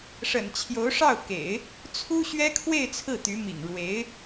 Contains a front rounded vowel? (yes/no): yes